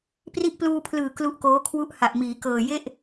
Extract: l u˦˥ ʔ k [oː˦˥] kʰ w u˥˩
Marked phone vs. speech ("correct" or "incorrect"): correct